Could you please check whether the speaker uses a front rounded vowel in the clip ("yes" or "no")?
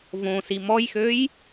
yes